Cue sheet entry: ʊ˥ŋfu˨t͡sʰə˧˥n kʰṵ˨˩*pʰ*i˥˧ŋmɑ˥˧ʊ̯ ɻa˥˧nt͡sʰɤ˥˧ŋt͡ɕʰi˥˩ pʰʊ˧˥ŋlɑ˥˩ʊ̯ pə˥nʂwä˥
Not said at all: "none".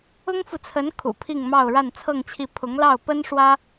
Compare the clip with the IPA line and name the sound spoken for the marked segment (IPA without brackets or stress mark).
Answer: pʰ